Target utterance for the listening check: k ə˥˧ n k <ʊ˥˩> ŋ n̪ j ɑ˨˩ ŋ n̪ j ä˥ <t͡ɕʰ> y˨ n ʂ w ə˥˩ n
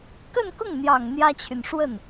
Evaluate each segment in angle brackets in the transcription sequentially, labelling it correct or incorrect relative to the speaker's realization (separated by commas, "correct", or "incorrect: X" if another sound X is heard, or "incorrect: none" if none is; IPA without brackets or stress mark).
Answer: correct, correct